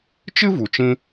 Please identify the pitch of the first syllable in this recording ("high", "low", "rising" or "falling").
high